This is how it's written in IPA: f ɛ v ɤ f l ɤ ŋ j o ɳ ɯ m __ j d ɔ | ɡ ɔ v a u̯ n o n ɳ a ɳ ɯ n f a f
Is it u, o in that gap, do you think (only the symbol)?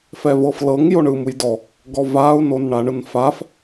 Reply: u